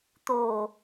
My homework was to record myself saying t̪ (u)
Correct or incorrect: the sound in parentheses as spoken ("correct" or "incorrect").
incorrect